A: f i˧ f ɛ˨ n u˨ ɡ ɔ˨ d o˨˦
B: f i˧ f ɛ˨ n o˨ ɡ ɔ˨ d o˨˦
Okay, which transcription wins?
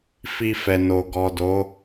B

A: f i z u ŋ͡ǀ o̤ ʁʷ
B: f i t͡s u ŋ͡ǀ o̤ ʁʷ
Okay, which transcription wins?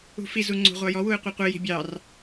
A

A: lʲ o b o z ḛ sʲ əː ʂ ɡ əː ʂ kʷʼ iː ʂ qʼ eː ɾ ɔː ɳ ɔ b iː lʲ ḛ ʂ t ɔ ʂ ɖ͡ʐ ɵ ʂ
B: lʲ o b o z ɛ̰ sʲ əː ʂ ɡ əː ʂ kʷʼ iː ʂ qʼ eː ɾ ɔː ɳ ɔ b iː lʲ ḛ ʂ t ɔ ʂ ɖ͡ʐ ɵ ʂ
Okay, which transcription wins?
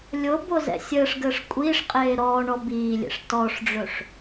B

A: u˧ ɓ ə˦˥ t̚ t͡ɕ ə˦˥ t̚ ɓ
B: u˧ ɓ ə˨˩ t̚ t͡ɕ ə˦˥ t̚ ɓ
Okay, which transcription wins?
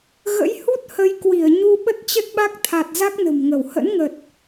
A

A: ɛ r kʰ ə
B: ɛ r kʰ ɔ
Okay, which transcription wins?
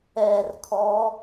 B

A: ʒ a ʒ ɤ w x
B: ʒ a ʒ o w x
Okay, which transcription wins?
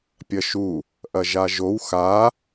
B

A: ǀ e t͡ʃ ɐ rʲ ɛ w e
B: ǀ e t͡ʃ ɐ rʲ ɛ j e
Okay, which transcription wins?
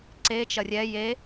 B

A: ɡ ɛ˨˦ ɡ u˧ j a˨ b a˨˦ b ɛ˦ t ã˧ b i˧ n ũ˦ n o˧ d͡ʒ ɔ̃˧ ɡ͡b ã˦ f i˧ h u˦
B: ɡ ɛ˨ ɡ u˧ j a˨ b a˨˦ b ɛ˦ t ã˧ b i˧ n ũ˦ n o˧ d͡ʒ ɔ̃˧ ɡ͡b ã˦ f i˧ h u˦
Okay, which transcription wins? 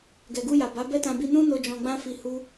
B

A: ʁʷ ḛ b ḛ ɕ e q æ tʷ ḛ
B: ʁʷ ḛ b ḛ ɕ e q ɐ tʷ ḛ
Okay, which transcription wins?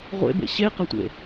B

